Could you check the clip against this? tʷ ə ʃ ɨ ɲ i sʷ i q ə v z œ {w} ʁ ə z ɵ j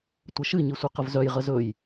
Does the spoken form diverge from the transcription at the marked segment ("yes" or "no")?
yes